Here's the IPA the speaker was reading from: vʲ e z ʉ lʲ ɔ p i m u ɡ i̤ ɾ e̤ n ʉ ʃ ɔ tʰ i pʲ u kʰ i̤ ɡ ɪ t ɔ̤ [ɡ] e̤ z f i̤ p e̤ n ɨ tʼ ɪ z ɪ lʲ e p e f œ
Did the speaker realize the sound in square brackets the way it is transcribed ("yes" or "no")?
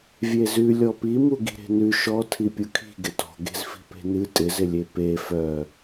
yes